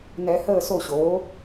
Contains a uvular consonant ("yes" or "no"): no